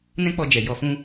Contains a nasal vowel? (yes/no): yes